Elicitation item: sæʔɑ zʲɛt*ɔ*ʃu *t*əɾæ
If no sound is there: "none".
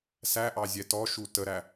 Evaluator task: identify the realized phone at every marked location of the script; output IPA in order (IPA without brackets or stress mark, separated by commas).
ɔ, t